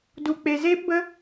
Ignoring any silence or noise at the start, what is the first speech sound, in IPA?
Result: d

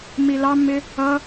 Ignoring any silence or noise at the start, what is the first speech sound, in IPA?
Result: m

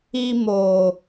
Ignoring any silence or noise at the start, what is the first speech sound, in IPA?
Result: i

